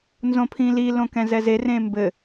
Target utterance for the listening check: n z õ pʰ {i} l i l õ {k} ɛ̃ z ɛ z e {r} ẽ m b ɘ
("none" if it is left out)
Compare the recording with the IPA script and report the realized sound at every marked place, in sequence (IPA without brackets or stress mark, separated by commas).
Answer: ĩ, k, r